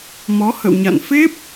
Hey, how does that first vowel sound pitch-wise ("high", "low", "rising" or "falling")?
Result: rising